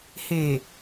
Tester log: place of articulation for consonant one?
glottal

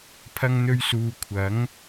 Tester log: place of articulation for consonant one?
labial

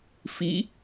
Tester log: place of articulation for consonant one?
labial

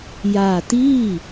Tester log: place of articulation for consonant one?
palatal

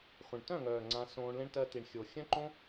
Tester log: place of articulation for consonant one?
uvular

